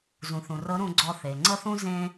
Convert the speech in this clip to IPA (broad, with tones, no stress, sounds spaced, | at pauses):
z ũ˩ θ ũ˩ r ɤ˧˥ ɾ ũ˧ ɡ͡ǀ ɔ˧ θ e˩ ŋ͡ǀ ɤ˥ θ ũ˥ z ẽ˥